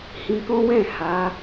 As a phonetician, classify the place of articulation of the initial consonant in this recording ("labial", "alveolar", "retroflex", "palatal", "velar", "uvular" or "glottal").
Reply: glottal